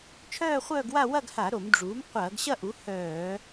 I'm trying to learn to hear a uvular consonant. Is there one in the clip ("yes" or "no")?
yes